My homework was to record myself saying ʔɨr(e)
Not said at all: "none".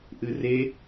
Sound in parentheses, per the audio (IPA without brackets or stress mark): e